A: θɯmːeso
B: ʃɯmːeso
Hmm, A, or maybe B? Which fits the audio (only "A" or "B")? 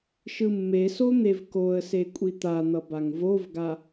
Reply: B